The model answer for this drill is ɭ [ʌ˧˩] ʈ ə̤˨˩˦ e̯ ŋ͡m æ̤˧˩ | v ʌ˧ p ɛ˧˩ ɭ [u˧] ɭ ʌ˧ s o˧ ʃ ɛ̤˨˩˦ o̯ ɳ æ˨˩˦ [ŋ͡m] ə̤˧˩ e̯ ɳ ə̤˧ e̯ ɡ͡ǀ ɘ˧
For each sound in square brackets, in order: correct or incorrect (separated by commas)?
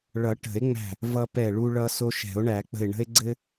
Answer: incorrect, correct, incorrect